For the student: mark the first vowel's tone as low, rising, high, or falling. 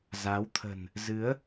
rising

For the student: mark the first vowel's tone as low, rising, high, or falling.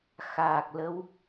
low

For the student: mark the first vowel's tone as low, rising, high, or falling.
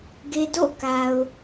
low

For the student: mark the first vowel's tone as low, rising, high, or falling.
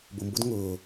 low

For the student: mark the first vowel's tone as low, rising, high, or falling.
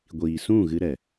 low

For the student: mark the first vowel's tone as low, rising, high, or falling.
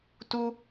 high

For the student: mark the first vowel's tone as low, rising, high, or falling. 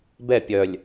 falling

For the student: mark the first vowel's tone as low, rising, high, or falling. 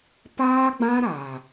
high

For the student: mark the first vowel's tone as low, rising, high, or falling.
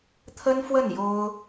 high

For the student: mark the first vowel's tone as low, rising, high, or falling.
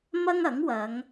high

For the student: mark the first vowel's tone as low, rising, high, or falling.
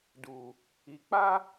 low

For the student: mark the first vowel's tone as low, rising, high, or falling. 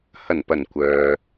low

